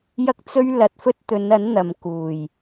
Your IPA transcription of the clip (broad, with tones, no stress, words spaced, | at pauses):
jɐ˥k̚t͡sɵ˥ɥ lɐ˨t̚fɵ˥t̚t̪ɵ˨˧nɐ˨˥n n̪ɐ˨mkuː˨˩j